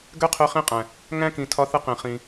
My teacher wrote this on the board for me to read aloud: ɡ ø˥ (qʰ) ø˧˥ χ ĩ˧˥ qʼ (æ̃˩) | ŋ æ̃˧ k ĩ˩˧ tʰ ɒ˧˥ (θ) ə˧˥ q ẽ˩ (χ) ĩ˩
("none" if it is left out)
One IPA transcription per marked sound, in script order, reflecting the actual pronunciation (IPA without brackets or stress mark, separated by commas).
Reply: qʰ, æ̃˩, θ, χ